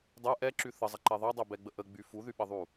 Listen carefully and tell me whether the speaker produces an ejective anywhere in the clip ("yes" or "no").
no